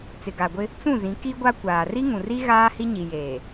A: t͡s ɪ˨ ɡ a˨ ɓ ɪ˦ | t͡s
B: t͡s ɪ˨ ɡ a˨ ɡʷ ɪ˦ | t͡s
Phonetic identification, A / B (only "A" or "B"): B